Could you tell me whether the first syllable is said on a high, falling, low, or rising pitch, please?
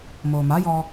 low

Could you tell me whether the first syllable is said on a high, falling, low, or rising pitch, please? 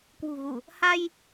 low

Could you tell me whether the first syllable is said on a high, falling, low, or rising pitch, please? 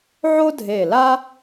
high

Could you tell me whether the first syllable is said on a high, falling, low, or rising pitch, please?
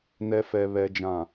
low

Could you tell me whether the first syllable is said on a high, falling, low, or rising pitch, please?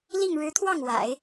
falling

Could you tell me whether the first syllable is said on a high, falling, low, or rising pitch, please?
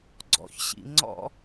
low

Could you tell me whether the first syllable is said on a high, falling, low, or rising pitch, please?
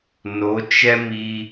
rising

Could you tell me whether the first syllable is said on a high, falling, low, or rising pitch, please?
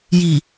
low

